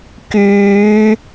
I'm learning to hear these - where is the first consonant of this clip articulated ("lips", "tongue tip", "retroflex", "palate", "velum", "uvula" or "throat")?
velum